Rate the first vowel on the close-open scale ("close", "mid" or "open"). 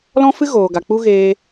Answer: mid